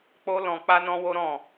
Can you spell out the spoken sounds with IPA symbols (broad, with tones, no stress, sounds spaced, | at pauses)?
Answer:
k͡p o˦ l ɔ̃˧ k͡p a˦ n ɔ̃˦ w o˦ ɾ ɔ̃˦˨